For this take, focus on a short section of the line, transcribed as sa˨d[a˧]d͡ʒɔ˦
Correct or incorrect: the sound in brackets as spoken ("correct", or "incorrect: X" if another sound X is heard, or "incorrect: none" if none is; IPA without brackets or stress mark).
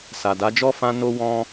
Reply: incorrect: a˨˦